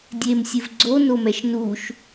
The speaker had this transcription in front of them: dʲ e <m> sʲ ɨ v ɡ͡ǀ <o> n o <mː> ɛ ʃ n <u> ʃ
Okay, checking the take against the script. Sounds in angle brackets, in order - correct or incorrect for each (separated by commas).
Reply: correct, correct, incorrect, correct